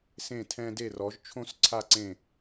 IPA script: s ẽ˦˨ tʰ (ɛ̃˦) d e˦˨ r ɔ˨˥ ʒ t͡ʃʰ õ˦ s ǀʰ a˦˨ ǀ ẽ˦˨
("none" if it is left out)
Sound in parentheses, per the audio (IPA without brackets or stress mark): ɛ̃˦